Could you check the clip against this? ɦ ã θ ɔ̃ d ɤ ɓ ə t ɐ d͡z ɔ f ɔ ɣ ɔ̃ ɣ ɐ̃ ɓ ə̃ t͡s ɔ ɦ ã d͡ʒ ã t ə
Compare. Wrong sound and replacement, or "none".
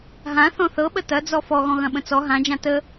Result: d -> θ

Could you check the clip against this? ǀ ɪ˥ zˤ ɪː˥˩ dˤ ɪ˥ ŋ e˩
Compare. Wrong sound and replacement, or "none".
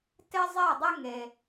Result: ǀ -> t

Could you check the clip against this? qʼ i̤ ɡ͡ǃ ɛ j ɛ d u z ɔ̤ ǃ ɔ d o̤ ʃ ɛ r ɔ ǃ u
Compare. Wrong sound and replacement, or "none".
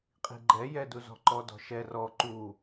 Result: o̤ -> ɔ̤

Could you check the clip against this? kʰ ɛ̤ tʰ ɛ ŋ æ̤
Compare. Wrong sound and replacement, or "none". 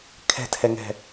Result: æ̤ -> ɛ̤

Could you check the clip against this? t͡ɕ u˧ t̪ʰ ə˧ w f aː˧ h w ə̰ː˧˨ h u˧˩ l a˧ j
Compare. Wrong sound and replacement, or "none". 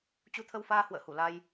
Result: none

